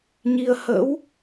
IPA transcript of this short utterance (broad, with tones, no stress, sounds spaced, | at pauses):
ɲ i˧ ə̯ h ə̰˧˥ w